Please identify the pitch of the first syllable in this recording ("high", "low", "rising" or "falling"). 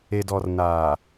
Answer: low